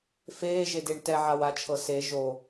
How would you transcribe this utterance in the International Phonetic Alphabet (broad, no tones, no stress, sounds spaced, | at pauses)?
f eː ʒ e d e ɳ t ɛ ʕ a w a t͡ʃʰ ɤ s e ʒ o